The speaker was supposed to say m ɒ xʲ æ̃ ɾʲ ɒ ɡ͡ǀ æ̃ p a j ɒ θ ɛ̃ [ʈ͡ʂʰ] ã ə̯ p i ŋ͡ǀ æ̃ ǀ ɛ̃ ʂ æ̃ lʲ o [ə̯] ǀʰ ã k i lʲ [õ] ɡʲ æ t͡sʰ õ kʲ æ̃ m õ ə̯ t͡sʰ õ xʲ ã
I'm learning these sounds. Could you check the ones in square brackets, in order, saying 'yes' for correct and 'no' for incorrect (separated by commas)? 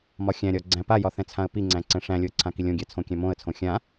no, yes, yes